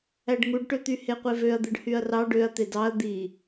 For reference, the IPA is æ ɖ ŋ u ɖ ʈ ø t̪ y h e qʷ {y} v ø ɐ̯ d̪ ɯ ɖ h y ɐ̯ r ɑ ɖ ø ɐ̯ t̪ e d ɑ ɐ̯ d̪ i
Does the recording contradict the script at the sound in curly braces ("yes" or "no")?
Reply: yes